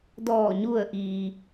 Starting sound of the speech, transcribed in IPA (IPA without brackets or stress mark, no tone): d